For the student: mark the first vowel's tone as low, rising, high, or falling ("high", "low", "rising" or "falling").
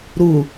low